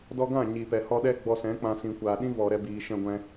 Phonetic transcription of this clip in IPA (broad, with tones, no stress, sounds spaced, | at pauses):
d ɔ˧ ɡ ã˦˨ ɲ i˨ p ɛ˨ h ɔ˧ ɗ ɛ˦ ɡ͡b ɔ˧ s ɛ̃˨˦ k͡p ã˧ s ĩ˨ kʷ aː˨ ɗ ĩ˦ v ɔ˨ ɾ ɛ˧ b iː˨ ʃ ɛ̃˦ ɡʷ ɛ̃˦